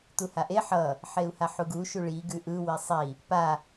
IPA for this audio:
t̪ u h a ʔ e ħ ʌ | ħ e u̯ h a ħ u ɡ u ʃ u ɭ i ɡ ʉ ʔ ɯ w i sˤ i | p a

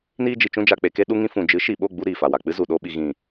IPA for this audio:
n iː˧ d͡ʒ i˨ t͡ʃ ũ˧ d͡ʒ a˨ k͡p e˨ k e˧ ɗ u˧ ŋ ĩ˧ f ũ˨ d͡ʒ ɨ˨˦ ʃ i˨ ɓ o˦˨ ɡ͡b u˧ ɾ iː˨ f a˨ w a˨ k͡p ɨ˦ z u˨ ɗ o˧ ɓ i˨ ɣ ĩ˨

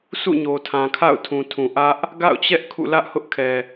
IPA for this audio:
sʰ ṵ˦˨ ɲ o˨ tʰ ã˨ kʰ a̰˦˨ ʊ̯ tʰ ũ˨ tʰ ũ˨ ʔ ä˦ ʔ | ɡ a̰˦˨ ʊ̯ t͡ɕ ɛ˦ ʔ kʰ ṵ˦˨ l ä˦ ʔ h ʊ˦ ʔ kʰ ɛ˨

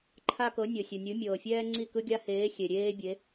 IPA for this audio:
ǃʰ a˦ k ɤ˨˦ nʲ ɤ˨ sʲ ɔ˨ nʲ u˨˦ mʲ ɤː˨ fʲ ɛː˦ ŋ͡ǀ i˦˨ k ɯ˦ ɡʲ a˦ h eː˨˦ xʲ e˨ ɾʲ eː˦ bʲ e˨˦

